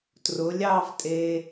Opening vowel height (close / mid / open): close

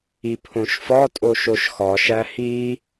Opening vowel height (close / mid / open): close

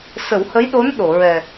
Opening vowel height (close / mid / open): mid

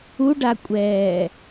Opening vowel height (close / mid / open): close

